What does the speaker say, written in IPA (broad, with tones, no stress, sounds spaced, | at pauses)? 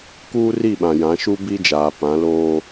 k uː˦ r i˦˨ ɓ ã˨ j ã˨˦ ʃ u˦ b i˦ d͡ʒ aː˨ p ã˨˦ l oː˦